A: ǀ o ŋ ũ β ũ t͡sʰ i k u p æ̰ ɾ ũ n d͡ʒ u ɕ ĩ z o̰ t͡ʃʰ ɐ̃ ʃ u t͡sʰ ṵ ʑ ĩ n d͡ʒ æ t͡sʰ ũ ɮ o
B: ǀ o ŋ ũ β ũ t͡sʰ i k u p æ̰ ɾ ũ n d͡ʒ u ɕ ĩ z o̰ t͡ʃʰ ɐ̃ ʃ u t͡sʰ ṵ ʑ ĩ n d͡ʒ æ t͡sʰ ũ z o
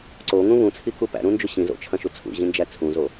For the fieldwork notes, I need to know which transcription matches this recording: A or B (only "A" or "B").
B